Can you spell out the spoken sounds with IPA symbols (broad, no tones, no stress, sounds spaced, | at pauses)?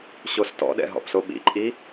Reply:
ɕ o s t ɔ̰ ɗ ɛ̰ ɦ ɔ̰ p s o ɓ ḭ ǃʼ i